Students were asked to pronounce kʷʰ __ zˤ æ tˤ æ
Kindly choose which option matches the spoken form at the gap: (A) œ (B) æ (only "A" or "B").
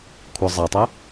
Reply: A